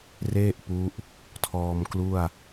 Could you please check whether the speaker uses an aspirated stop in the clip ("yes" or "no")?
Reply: yes